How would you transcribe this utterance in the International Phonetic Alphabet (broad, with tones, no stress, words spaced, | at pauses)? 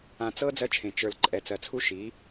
ã˨t͡sɤ˦ d͡zɜ˦t͡ʃʰẽ˨ t͡ʃə˞˨l ǃʼɛ˨ t͡sɜ˨t͡sʰu˦ ʃi˨˦